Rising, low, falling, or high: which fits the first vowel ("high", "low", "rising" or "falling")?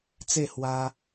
falling